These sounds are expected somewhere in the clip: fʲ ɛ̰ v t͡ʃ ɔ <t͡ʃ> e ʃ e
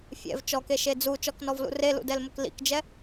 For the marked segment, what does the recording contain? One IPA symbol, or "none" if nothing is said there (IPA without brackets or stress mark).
k